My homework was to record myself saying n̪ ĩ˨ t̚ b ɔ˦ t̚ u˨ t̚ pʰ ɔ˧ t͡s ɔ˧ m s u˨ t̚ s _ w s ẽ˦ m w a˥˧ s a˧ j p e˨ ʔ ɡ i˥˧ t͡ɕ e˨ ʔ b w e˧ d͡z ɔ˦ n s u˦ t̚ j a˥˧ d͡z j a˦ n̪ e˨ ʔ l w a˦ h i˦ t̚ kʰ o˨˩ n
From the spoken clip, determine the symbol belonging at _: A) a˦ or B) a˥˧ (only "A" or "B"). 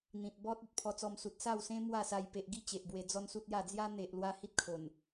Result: B